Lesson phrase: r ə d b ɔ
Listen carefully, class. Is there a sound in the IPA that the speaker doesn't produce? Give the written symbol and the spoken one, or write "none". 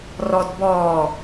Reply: ə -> ɔ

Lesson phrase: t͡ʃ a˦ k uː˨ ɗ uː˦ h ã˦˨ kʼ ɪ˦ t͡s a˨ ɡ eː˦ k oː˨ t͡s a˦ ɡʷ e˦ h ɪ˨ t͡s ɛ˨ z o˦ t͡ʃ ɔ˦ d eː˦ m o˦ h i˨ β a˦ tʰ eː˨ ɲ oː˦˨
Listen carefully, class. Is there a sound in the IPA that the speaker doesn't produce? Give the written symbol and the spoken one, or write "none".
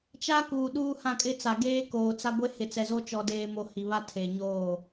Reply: none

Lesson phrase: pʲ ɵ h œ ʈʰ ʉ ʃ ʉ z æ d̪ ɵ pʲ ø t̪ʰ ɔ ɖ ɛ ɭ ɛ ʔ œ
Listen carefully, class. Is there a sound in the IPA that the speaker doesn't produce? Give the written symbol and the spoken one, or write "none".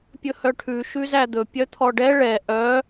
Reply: ø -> œ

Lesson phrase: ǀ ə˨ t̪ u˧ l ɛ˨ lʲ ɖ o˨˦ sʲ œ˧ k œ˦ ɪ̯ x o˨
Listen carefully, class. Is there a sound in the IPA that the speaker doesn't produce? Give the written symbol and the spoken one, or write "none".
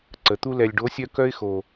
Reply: none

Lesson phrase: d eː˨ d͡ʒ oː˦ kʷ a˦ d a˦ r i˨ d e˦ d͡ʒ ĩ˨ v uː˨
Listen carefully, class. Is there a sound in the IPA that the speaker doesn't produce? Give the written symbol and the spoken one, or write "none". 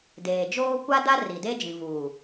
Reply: none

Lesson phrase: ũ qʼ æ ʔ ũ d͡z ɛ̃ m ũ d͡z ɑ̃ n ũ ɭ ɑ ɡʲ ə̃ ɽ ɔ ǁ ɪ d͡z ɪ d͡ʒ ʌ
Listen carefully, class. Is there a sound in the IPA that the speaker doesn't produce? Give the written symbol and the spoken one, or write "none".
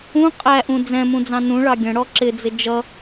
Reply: none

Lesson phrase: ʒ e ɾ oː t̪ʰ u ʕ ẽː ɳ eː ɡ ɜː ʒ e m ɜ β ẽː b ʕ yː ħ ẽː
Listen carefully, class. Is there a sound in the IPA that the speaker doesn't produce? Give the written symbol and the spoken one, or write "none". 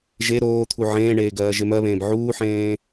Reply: yː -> uː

